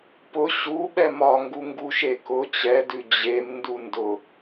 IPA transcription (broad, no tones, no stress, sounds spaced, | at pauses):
p ʊ ɕ u ɓ ɛ m ɒ ŋ ɡ u ŋ ɡ u ʃ e k ʊ t͡ɕ ɛ d ʉ d͡ʑ e m n d u n d ʊ